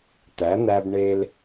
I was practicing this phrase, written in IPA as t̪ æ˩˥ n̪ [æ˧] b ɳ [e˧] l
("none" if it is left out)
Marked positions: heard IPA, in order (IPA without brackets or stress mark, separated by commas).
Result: æ˧, e˧